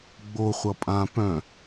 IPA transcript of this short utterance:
ɡ͡b o χʷ ʌ pʼ ã p œ̃

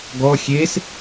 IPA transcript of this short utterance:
ɡ ɔ xʲ e s

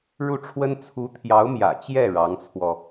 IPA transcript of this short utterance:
ɻ u˥˩ ʈ͡ʂʰ w ə˥ n t͡sʰ u˧˥ t̪ʰ j ɑ˧˥ ʊ̯ m j ä̰˨˩ t͡ɕ j ɛ˥˩ ɻ ɑ˧˥ ŋ t͡sʰ w ɔ˧

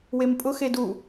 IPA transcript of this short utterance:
w e m pʼ ʊ x e d u

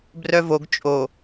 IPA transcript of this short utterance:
b r œ v o ɡ t͡ʃʼ o

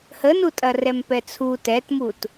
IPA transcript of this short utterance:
h ə n u tʼ ɐ r ɛ m p ɛ t͡sʰ u t ɛ t m u t

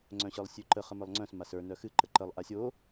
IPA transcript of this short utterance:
ŋ͡ǀ œ̃ ɕ ə˞ lˠ sʲ ʉ ǃ ə χ ə m ə˞ lˠ ŋ͡ǀ œ̃ s m a s ə˞ n œ x ɨ ǃ ə ǃ ə lˠ ʔ a sʲ o

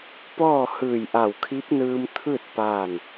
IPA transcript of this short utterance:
p ɔː˥˨ h ɯː˧˩ j ʔ a˧˩ w kʰ i˧˥ p̚ n ɯː˧ m t̪ʰ ɯː˥˨ t̚ p aː˥˨ n

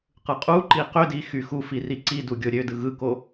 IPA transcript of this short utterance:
q ɯ qʼ u ǃ i q ø d i x y x u f i r i ǀ i d u ɡʲ o ɾʲ ø d ɯ ɣ ɯ k o

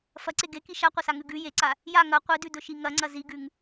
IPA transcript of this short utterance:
f ɐ ǀ e ɡ e k i ʃ a qʷ ɐ s a ŋ ʉ ɡ ʉ j e ǀ a | j a ŋ ɐ qʷ i d ʉ d ɵ ʃ i ŋ ɐ ŋ͡ǀ ɐ z i ɡ ʉ ŋ

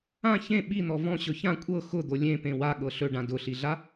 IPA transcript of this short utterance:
ã ç ẽ ɓ i n̪ ɔ v ɔ̃ ɕ ɵ ç ã kʷʼ ɤ x ʊ d̪ o lʲ ẽ p ẽ w a ɠ ɤ ɬ ɵ ɖ ã d ʊ ɬ i ɮ a

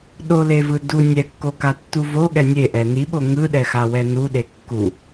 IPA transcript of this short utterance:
ɗ o l e v ɯ d u nʲ ɛ kː o k a tː u v o ɠ ɛ nʲ e ʔ ɛ n i ɓ o ŋ ɯ ɗ ɛ x a w ɛ n u ɗ e kː u

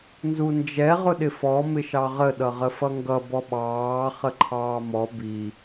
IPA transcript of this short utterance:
n z u n d͡ʒ ɛ ʁ ʊ ɗ ɪ f ɔ m ɪ ʃ ɑ ʁ ə ɗ ʌ ʁ ə f ʌ ŋ ɡ ʌ b ɔ ɓ ɑː χ ə ǃʰ ɑː m ɔ b i

